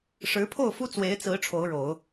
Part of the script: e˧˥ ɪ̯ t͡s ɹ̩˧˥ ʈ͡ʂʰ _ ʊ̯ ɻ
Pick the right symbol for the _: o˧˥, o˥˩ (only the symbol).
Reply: o˧˥